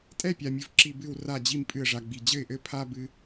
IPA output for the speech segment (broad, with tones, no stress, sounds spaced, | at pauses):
tʼ ɛ˦˨ pʲ a˨ mʲ ɨ˨ v ǁ i˨ b ɨ˨ w r a˨ d͡ʑ i˨ m pʼ ɨ˨ ə̯ ʐ a˨ ɡ͡b i˨ d͡ʑ ɘ˦˨ ɪ̯ ʔ ɘ˦ pʰ a˦ b ɨ˦